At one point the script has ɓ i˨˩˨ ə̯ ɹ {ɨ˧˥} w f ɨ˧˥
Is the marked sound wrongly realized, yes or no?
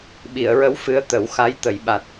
yes